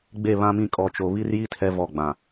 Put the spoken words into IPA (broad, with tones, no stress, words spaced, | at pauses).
ɡ͡be˦˨βã˦mĩ˦˨ kʼɔ˨t͡ʃo˨βi˦rji˦ tʰɛ˦vɔ˦˨ ɡ͡bã˨